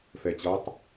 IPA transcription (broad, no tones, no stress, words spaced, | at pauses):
fɛt͡ɕʌtˤ